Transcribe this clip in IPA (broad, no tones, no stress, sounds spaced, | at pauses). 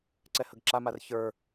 ǀ ɛ h ə ɡ ǁ a m a r ç ə˞